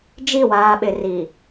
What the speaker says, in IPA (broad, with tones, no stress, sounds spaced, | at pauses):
d͡ʒ i˦˨ w aː˨ ɓ ɪ˨ r i˨